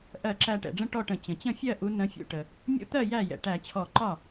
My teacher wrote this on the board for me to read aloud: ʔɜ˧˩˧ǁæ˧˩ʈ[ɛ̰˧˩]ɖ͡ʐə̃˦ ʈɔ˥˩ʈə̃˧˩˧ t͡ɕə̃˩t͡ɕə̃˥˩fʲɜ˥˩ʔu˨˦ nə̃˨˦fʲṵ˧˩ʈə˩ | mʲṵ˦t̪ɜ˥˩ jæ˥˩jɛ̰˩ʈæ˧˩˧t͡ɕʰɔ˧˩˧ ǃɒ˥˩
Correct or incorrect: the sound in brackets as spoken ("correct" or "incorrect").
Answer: incorrect